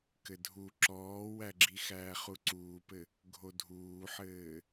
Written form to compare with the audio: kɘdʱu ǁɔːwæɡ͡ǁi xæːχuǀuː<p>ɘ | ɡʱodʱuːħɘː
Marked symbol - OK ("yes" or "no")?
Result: yes